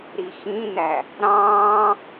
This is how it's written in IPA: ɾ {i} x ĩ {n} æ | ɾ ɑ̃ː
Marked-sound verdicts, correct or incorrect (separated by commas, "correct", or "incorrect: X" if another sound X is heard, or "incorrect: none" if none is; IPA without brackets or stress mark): correct, correct